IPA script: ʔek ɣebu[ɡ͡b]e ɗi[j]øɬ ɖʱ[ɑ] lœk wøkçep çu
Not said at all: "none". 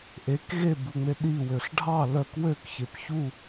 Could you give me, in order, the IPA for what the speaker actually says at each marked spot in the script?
ŋ͡m, w, ɑ

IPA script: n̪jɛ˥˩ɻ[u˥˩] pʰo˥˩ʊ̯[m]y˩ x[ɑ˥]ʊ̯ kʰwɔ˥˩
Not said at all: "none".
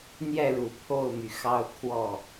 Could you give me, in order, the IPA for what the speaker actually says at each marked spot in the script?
u˨˩, m, ɑ˥

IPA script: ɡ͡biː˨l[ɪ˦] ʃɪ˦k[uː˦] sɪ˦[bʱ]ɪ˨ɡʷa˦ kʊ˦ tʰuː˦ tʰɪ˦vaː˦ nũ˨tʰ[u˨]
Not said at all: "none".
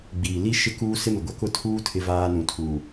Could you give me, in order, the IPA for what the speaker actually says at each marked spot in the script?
i˦, uː˦, m, uː˨

